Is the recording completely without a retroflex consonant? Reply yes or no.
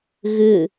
yes